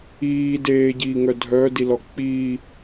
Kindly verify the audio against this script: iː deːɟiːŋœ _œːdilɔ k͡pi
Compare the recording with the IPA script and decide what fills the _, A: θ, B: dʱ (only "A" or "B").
B